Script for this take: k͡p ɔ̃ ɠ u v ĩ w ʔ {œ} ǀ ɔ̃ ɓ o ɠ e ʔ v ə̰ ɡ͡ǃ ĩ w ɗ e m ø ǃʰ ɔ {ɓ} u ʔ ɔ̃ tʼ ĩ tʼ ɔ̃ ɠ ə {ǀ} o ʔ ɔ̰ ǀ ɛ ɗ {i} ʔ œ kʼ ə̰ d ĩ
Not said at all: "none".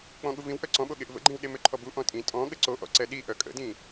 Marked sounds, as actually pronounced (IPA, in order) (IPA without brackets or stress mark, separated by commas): œ, b, ǀ, i